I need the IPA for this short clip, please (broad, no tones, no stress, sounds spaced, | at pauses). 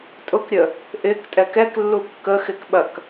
tʼ ʊ k ɾʲ ə | ʔ ɪ k tʼ ɛ k ɛ k lː u kː ə x ɪ k ɓ ɐ k